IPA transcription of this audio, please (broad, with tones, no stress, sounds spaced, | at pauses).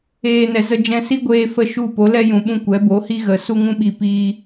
eː˦ n ɛ˧ z ə˦ d͡ʒ ɛ̃˧ s i˦ ɡʷ eː˦ f ə˦ ʃ u˦˨ p o˨˦ l ɛ˦ j ũ˨ ɓ ũ˧ kʷ ɛ˨˦ b o˨˦ h i˦ ɣ ə˧ s u˧ ŋ ũ˧ ɓ i˨ p iː˧